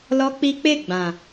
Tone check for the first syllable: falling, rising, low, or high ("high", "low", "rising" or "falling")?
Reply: high